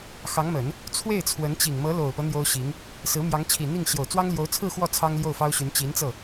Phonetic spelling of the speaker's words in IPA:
x ɑ˧˥ ŋ m ə˨˩˦ n | t͡sʰ w e˥˩ ɪ̯ t͡sʰ w ə˧˥ n t͡ɕ i˨˩ ŋ m ɤ˧˥ l o˨˩ ʊ̯ p ɤ˦ n̪ j o˥ ʊ̯ ɕ i˧˥ ŋ | s ɹ̩˧˥ m j ɑ˧˥ ŋ t͡ɕʰ i˨˩ n̪ i˥˩ ŋ ɕ j o˨˩ ʊ̯ t͡s w ɑ˥ ŋ l j o˧˥ ʊ̯ t͡sʰ ɹ̩˥˧ x w ɔ˥˩ t͡sʰ ɑ˥ ŋ l j o˥˩ ʊ̯ f ɑ˥ ʊ̯ ɕ y˧˥ n t͡ɕ i˧˥ n t͡s ɤ˥˩

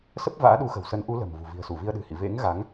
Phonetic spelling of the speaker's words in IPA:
s ə˦˥ p̚ v a̰ː˧˥ ɗ u˨˦ x ə̤˨˩ w s ə˨˦ n ʔ u˨˦ l ə̤˨˩ m v ṳ˨˩ v i̤˨˩ ə̯ s u˧˩ v i˧ ə̯ ɗ ɨ̤˨˩ h ḭ˧˨ v ḛ˧˥ ŋ ɣ a˨˦ ŋ

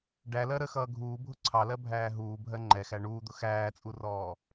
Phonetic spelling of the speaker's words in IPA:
ɖ æ l ɜ ɾ ə x ʌː ɡʱ uː bʱ ʊ ǀʰ ɑ l ɜ bʱ æː ɦ uː bʱ ɜ ŋ͡ǃ ɛ x æ ɳ uː d̪ ʊ x æː t͡sʼ u r ɔː

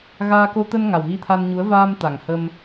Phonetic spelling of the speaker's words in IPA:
ɣ aː˧ k o˧ t̪ ə˧ n ŋ a˨˩ w ɣ i˧ t̪ʰ a˧ n ɲ u˨˦ ə̯ v aː˧ m t̪ a˨˩ ŋ h ə˧ m

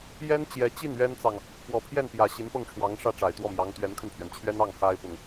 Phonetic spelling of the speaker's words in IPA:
j ɛ˥ n t͡ɕ j ɛ˧˥ t͡ɕ i˥˩ n ɥ ɛ˥ n t͡s ɑ˨ ŋ | p w ɔ˨˩ pʰ j ɛ˥˩ n p j ä˨˩ ɕ i˧˥ n p ɤ˥˩ ŋ ʈ͡ʂʰ w ɑ˧˥ ŋ ʂ ä˥˩ ʈ͡ʂ a˨˩ ɪ̯ t̪ w ɔ˥˩ m j ɑ˧˥ ŋ t̪ ɥ ɛ˧˥ n kʰ ə˧ n pʰ ɥ ɛ˩ n t͡ɕʰ ɥ ɛ˥ n ɑ˥˩ ŋ x a˥ ɪ̯ p ʊ˨ ŋ

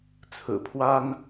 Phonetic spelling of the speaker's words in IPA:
t͡sʰ ɹ̩˨˩ pʰ w a˥ n

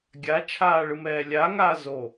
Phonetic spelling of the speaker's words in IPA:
ɡʲ a t͡ʃʰ aː ɭ ɯ m ɛː lʲ a ŋ aː z o

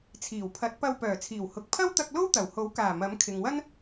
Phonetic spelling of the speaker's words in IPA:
t͡sʰ iː˨˩ w pʰ ɐ˨˥ t̚ p ɐ˧ w p œː˨˩ t͡sʰ iː˨˩ w h ʊ˨ k̚ pʰ ɐ˥ w t̪ ɐ˧ k̚ l o˥ w t̪ ɐ˨˩ w h o˨˥ w k aː˨˩ m ɐ˨˥ m kʰ ɪ˨ ŋ w ɐ˥ n

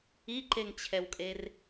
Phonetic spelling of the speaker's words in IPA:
i ǃ e ŋ t͡ɕʰ ɛ w kʼ e r

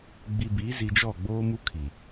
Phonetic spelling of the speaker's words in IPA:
ɡ͡b i˨ b iː˨˦ z i˨ d͡ʒ ɔ˦˨ ɡ͡b oː˦ m u˦ kʰ i˨

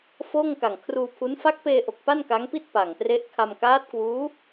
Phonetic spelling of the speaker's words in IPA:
f oː˥˩ ŋ k a˨˩ ŋ kʰ r uː˧ pʰ u˦˥ n f a˦˥ k̚ p eː˧ ʔ o˨˩ k̚ p a˥˩ n k a˦˥ ŋ p i˥˩ t̚ p a˨˩ ŋ t r e˦˥ ʔ kʰ a˧ m k aː˦˥ t̚ k w uː˦˥

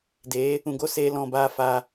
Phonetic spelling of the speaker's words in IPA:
d eː˨˦ | ũ˨ ɡ o˦˨ s eː˦ l ɔ̃˦˨ b aː˦ f aː˧

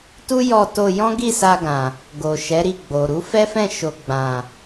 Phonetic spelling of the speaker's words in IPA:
t u˦ j ɔ˧ t o˧ j ɔ̃˦ ɡ i˦˨ s a˧ ɡ ã˨ | ɡ o˨ ʃ ɛ˨˦ ɾ i˦˨ ɡ͡b o˨ ɾ u˨˦ f ɛ˦ f ɛ̃˦˨ ʃ o˧ ɡ͡b ã˨

